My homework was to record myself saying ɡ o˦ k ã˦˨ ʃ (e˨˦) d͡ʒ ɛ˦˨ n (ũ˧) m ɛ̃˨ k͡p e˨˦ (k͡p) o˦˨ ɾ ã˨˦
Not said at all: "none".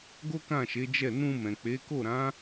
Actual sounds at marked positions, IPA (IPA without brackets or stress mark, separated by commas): e˨˦, ũ˧, k